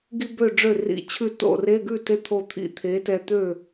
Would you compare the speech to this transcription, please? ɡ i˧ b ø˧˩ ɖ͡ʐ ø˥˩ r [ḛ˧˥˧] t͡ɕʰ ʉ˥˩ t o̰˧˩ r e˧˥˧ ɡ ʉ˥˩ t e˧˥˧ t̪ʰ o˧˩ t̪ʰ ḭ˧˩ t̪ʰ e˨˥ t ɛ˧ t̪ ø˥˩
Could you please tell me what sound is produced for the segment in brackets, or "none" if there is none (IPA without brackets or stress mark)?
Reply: ḭ˧˥˧